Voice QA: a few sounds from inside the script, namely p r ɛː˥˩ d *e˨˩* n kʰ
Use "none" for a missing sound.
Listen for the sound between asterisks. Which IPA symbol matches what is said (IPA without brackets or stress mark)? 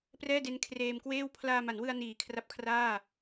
e˦˥